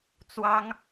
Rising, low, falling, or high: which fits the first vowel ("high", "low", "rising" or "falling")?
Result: high